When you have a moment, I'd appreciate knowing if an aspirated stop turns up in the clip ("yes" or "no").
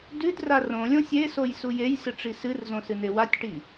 no